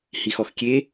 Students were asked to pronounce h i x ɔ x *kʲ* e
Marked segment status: correct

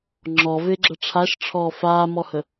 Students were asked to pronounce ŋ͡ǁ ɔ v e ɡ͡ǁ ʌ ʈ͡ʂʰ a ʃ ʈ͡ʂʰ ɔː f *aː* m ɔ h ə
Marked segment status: correct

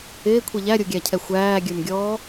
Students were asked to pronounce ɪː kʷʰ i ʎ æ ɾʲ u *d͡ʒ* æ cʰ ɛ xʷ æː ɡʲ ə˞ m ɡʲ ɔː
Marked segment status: incorrect: ɡʲ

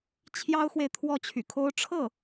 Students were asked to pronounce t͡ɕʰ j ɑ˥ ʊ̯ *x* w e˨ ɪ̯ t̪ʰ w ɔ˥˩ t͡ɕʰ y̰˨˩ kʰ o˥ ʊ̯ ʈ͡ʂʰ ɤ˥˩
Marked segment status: correct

